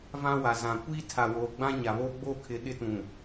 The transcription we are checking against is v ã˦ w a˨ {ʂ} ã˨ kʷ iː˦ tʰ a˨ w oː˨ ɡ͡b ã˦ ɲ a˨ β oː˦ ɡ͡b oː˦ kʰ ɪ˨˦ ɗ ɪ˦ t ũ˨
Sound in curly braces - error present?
yes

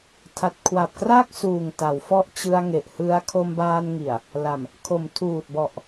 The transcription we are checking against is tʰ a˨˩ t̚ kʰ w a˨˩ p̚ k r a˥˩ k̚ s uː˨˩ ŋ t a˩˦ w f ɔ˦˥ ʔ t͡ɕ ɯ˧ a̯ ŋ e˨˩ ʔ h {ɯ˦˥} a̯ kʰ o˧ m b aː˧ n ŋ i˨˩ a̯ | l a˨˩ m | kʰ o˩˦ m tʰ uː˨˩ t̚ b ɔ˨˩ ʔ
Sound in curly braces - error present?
no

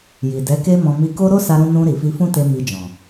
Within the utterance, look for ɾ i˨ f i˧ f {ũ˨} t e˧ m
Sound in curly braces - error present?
yes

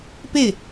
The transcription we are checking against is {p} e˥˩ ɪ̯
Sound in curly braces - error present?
no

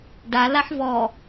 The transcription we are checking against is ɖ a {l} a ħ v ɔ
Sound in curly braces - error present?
no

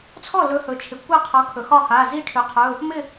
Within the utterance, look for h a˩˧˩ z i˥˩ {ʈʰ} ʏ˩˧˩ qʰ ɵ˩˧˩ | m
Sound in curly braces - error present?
no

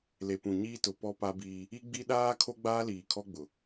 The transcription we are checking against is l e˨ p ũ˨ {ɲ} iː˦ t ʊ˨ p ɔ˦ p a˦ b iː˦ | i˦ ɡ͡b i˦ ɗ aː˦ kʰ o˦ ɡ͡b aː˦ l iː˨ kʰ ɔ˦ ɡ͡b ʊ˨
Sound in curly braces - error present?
no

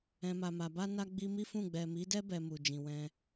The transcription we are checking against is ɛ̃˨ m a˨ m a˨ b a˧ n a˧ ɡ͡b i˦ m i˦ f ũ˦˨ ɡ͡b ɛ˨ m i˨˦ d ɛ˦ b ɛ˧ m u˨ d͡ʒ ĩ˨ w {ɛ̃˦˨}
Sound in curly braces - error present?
yes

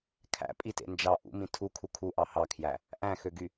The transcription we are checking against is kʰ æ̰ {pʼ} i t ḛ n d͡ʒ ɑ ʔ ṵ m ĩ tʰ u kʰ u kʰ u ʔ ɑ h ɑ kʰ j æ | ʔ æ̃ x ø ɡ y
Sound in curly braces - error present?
no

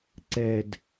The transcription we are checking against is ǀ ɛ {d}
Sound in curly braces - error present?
no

